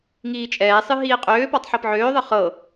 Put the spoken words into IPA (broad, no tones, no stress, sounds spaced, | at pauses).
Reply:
ŋ iː t͡ʃʼ ɛː sˤ ɨ ɦ iː qʼ øː p ɔ tˤ ħ ɤ p ʕ øː ðˤ ɨ χ ɤ